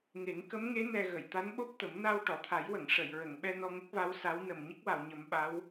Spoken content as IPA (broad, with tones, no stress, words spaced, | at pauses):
ŋe˨˩˦ŋkə˧˥mŋe˧˥ nɛ˧ ɣə˨˩˨jt̪a˧˥nɓo˦˥p̚t̪ə˨˩˦m na˧wʈɔ˨˩˨t̪ʰa˨˩˦jwə˨˩˨ŋ ʂə˨˩˨jɹə˨˩˨ŋɓɛ˧ nɔ˧ŋə˦˥k̚va˧˥w sa˧˥w nə˨˩mɲə˦˥k̚wa˨˩˨wɲə˨˩˦m ɓa˧˥w